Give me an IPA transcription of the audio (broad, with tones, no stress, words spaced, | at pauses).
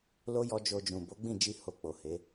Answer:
lo˦ jɔ˦ d͡ʒo˧d͡ʒũ˨ bo˨˦ɡ͡bĩ˦˨d͡ʒi˧ ho˧k͡po˨he˨˦